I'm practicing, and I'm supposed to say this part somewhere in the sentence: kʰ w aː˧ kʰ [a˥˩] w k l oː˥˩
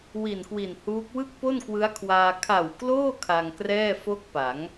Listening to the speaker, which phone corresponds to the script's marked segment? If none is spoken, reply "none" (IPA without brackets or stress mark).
a˨˩